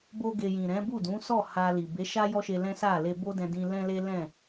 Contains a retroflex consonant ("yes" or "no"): no